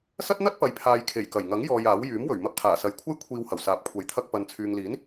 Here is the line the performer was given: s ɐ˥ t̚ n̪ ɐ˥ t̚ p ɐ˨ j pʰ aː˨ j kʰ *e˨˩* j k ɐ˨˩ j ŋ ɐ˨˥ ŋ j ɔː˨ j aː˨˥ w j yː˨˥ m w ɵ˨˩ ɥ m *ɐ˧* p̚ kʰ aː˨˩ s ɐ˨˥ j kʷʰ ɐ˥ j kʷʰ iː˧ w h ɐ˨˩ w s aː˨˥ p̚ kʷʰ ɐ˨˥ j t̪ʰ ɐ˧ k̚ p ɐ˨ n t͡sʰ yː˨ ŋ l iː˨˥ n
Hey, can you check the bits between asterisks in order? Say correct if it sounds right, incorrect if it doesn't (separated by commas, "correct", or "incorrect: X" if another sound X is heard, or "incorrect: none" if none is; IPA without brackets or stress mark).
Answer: correct, correct